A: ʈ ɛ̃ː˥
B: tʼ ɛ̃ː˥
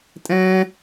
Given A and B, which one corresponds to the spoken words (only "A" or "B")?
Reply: B